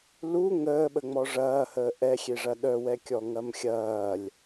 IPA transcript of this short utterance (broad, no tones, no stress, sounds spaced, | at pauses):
l u ŋ əː ɓ ə ŋ͡m ɔ ʐ ɐː h əː ʔ ɛ xʲ e ʐ ɐ ɗ œ w ɛ kʲ ɔ ŋ ɐ m xʲ ɐː lʲ